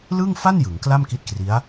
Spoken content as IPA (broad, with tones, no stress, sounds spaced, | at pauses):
l ɯ˥˩ ŋ f a˥˩ n j ɯ˩˦ ŋ k l a˥˩ m k i˦˥ t̚ k r i˦˥ a̯